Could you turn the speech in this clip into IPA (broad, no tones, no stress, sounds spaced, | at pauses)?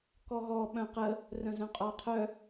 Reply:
k ɔ ɣ ɔ ɓ œ̃ q ə | r œ̃ z œ̃ qʼ ɔ qʰ œ